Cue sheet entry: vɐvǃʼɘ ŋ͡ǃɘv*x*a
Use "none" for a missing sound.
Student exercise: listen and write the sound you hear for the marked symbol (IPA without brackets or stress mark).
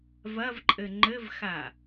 x